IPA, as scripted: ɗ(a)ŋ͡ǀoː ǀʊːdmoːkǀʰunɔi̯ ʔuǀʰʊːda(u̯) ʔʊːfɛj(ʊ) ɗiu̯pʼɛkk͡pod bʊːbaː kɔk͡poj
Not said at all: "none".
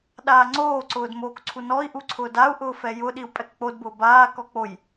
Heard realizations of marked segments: aː, u̯, ʊ

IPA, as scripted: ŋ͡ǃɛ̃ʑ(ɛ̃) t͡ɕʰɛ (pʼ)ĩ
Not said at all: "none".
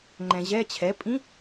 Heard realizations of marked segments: ɛ, pʼ

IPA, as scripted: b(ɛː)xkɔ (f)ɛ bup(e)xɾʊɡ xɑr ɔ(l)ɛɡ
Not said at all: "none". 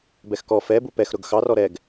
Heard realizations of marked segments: ɛ, f, ɛ, ɾ

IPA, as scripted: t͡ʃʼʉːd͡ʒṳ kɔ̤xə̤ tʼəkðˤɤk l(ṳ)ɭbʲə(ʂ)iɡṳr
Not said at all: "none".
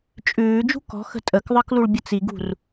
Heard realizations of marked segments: u, t͡s

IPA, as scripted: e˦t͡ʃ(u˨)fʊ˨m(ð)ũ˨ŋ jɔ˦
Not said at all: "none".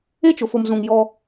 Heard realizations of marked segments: ʊ˨, z

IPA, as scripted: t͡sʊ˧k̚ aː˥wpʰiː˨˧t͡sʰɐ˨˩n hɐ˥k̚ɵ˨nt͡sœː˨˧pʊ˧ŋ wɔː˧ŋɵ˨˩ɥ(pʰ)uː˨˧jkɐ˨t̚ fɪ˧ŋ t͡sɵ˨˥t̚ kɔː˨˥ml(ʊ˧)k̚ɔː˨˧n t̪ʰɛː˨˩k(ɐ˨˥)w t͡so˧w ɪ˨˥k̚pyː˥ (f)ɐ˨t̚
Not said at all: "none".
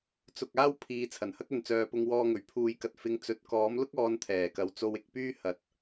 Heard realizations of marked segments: pʰ, ʊ˥, ɐ˨˥, h

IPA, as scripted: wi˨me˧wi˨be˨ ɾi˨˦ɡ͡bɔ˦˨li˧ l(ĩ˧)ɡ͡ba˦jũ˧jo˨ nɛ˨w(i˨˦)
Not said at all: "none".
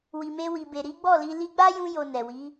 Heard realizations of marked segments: i˧, i˨˦

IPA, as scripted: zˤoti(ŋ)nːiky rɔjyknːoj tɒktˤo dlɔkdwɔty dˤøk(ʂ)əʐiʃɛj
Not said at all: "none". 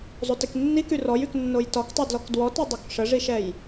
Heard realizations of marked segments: k, ʂ

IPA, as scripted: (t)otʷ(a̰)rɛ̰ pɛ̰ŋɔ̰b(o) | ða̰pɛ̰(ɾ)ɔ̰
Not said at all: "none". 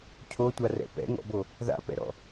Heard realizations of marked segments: cʰ, a, o, ɾ

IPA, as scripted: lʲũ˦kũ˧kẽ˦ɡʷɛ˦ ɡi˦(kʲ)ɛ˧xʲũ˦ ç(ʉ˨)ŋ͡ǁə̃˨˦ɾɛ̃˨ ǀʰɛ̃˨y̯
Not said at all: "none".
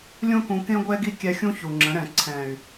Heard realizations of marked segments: kʲ, u˨

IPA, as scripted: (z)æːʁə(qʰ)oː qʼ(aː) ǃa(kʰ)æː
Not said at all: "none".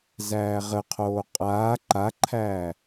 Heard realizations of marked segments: z, qʰ, aː, ǃʰ

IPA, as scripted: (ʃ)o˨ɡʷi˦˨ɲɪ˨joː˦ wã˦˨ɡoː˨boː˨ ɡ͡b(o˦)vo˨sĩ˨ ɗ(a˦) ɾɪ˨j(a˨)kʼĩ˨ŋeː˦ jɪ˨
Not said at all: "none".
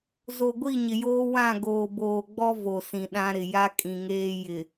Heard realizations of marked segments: z, ɔ˦, ã˦, a˦

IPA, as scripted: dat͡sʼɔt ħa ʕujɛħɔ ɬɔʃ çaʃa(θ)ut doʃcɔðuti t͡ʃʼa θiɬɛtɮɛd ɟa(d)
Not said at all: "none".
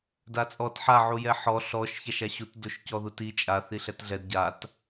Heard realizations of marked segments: ɕ, t

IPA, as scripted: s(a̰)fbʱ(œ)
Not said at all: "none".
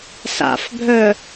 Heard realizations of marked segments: a̰, œ

